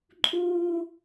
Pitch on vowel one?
high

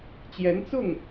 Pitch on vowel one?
rising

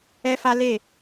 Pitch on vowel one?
high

